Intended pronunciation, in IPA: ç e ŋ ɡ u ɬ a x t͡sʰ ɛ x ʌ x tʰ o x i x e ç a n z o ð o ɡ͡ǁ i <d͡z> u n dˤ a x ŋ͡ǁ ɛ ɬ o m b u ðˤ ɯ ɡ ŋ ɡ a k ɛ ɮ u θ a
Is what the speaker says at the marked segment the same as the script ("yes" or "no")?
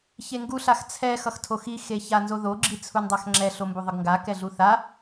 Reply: no